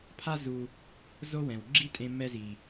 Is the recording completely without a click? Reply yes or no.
no